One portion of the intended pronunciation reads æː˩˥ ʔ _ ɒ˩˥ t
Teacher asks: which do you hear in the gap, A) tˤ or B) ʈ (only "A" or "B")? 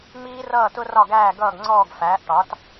B